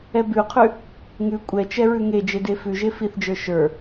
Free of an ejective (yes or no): no